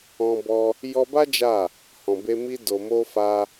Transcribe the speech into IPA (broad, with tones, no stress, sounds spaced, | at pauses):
ɔ̃˧ b ɔ˧ | j ɔ˧ b a˦ d͡ʒ a˦˨ | h ɔ̃˨ b e˧ m i˧ d o˨ m o˧ f a˧